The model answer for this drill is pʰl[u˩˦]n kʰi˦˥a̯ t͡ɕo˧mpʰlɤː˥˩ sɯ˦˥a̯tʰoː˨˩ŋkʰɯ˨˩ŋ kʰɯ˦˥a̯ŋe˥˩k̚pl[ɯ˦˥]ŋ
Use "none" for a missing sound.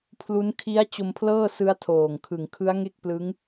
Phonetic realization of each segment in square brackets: u˦˥, ɯ˦˥

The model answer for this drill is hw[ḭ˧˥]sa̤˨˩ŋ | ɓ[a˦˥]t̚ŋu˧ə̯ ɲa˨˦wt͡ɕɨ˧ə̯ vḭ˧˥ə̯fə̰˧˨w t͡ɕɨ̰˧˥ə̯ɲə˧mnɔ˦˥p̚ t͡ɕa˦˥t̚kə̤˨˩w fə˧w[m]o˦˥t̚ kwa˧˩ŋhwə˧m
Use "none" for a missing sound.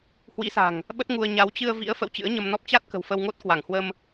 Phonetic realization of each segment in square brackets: ḭ˧˥, ə˦˥, ŋ

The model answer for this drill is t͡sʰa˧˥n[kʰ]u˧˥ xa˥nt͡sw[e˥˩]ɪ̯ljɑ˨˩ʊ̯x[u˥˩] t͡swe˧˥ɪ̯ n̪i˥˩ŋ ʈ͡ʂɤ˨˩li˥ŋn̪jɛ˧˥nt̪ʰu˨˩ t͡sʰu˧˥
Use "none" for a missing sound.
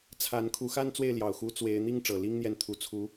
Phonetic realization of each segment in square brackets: kʰ, e˥˩, u˧˥

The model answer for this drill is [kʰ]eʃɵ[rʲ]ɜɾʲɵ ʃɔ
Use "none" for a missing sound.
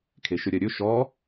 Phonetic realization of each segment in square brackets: kʰ, ɾʲ

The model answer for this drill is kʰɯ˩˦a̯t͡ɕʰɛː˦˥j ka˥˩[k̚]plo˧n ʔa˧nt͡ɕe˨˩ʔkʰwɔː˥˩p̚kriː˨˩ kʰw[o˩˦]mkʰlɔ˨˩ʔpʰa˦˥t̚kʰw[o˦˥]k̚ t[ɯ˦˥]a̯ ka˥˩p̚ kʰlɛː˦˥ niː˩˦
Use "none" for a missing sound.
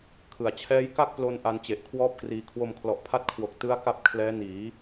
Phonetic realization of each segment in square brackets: k̚, o˧, o˨˩, ɯ˦˥

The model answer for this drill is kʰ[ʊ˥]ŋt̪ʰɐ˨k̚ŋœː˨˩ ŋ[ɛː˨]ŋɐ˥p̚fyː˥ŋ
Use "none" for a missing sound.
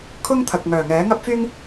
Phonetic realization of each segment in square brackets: ʊ˥, ɛː˨˥

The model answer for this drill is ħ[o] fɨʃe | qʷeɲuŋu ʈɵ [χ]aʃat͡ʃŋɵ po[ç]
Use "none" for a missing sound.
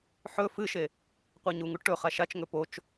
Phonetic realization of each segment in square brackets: ɵ, χ, t͡ʃ

